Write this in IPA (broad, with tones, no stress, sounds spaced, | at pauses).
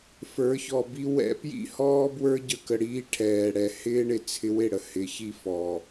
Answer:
f ə˞˨˦ ç ɔ˨ b i˦ w ɛ̰˧ p j ḭ˦ h ɔː˦ b w ə˞˦ ɟ ə˦ k ə˧ ɽ iː˧ ʈʰ ɛː˨ ɽ ɛ˨ h ɪː˦ ɳ ɪ˨ t͡sʰ ɪ˧ w ɪ˦˨ ɽ ə˨ h ɪ˨˦ ç i˦ f ɔ˨